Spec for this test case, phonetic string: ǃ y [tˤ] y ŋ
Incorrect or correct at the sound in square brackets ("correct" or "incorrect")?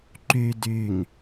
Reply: incorrect